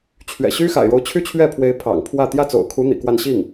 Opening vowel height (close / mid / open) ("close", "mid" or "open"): mid